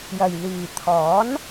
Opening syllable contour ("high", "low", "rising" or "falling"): low